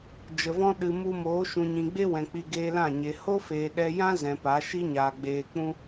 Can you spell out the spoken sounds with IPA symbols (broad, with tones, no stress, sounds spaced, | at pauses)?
d͡ʒ ə˧ v ɔ̃˦ ɗ ɨ˨ m u˧ m oː˨˦ ʃ ũ˨ ɲ ĩ˨ ɡ͡b e˦ w ɛ̃˨ k͡p i˧ ɡ eː˧ l ã˦˨ ɲ e˨ h o˦ f eː˨ ɗ ɛ˧ j ã˦ z ɛ̃˨ p a˨˦ ʃ i˦ ɲ aː˨ ɡ͡b eː˨ k͡p ũ˧